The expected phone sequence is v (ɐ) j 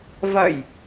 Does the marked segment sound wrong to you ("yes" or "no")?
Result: no